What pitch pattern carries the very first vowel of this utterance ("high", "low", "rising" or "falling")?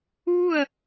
falling